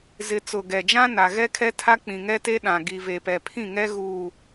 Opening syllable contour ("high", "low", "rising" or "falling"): low